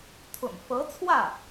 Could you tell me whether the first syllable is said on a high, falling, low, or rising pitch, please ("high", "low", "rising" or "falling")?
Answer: low